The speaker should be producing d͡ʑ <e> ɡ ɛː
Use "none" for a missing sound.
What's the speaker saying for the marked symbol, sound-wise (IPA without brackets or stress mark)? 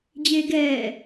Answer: eː